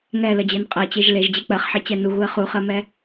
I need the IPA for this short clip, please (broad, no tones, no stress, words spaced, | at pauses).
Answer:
ŋɛləd͡ʑɛn qʼɛt͡ɕeʒ leʒd͡ʑe k͡pɜχħet͡ɕɛ nuɣuə̯ χuχɜmɛ